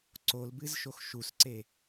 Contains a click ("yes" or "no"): yes